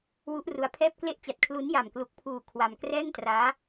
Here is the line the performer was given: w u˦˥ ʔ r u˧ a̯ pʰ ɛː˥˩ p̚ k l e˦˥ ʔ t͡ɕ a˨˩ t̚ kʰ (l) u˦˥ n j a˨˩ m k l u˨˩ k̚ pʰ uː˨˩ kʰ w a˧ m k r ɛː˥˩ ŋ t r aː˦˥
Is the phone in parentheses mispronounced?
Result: no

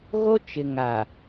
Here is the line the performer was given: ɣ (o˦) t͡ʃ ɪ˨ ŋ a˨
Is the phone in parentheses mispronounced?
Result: no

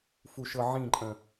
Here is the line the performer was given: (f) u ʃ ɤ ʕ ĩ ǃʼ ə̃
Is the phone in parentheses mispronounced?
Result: no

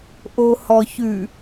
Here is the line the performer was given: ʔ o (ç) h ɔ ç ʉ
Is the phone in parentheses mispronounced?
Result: yes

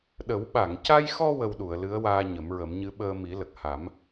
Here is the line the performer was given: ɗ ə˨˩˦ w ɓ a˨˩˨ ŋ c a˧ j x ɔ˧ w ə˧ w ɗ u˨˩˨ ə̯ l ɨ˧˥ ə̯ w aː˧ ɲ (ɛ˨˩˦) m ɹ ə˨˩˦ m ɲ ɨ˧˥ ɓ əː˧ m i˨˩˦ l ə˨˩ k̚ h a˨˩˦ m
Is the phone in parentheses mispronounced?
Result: yes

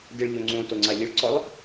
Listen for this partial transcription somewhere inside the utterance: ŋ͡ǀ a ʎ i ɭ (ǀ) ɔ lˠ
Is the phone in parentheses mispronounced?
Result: no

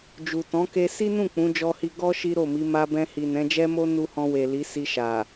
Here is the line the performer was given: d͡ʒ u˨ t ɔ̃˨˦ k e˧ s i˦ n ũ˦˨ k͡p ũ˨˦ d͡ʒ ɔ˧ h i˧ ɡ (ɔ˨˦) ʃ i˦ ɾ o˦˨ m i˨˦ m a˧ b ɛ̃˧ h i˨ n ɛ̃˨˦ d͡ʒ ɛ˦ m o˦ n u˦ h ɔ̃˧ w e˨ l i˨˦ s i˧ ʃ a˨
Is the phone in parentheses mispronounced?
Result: yes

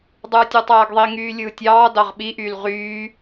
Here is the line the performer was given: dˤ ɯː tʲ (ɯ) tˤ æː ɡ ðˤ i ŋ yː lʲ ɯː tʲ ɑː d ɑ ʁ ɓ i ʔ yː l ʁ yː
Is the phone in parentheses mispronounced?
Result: yes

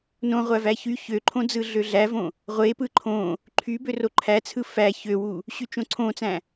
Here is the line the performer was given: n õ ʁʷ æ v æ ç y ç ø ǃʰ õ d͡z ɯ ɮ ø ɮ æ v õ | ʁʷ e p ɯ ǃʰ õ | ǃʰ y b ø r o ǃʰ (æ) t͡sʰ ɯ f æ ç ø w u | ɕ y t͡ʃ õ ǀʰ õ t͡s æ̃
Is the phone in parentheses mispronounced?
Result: no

